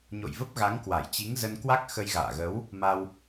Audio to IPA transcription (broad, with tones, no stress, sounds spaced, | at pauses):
ɲ o̰˧˨ j v ə˦˥ p̚ ɣ a˨˦ ŋ k w a˧˩ j t͡ɕ i˨˦ ŋ z ə˧ n k w a˦˥ k̚ x ə˧ j ɣ a̰ː˧˨ ɣ ə˨˦ w | m a˧ w